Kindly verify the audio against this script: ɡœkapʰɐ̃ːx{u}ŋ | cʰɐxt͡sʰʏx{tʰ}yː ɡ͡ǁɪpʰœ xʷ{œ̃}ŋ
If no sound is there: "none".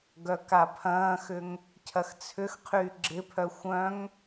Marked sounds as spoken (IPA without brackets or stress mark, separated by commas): ʏ, qʰ, œ̃